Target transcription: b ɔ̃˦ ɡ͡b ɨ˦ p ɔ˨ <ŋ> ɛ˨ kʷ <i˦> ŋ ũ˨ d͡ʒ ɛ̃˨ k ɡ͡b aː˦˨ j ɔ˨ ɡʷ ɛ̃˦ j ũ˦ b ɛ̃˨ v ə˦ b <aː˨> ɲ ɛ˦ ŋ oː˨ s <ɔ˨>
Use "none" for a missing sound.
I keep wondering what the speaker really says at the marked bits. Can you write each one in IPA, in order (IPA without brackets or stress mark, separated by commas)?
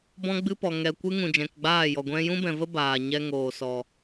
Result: ŋ, ɨ˦, aː˨, ɔ˨